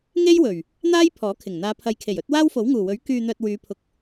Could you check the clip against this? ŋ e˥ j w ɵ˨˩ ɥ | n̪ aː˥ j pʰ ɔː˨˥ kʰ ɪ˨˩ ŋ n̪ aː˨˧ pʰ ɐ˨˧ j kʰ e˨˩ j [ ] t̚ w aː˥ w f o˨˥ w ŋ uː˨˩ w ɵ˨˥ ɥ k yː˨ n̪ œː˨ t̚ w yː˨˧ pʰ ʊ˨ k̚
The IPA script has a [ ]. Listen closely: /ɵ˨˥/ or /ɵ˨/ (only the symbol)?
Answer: ɵ˨˥